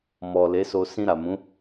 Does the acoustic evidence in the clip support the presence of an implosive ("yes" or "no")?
no